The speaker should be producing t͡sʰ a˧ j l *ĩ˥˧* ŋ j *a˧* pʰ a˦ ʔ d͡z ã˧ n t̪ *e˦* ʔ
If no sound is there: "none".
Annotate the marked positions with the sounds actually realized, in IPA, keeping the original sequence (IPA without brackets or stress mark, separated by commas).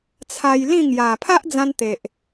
ĩ˥˧, a˨˩, e˨